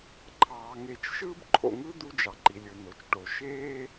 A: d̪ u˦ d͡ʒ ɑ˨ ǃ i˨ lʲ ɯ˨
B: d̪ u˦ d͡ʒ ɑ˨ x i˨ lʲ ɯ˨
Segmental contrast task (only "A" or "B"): A